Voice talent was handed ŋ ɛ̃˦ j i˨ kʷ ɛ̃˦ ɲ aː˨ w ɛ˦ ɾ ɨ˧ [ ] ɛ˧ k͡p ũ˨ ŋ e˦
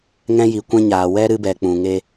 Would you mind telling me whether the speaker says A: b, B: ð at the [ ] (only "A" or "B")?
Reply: A